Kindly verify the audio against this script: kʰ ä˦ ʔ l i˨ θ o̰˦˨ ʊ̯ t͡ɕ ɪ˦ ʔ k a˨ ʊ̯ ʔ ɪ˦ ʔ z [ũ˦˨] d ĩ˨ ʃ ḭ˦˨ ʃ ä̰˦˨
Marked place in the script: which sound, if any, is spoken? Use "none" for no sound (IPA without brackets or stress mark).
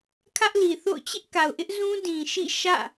ũ˦